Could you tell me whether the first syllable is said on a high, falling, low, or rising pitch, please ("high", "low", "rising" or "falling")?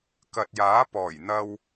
low